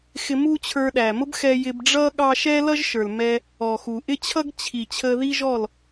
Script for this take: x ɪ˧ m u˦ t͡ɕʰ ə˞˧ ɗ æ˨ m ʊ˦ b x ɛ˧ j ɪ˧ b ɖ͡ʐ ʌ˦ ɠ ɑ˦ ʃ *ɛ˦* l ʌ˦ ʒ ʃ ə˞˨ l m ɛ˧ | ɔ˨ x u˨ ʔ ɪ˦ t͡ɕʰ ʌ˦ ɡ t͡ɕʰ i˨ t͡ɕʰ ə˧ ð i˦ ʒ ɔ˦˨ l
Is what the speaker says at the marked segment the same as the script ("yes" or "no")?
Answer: yes